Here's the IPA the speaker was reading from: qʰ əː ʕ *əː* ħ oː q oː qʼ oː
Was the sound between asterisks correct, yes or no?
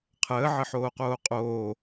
no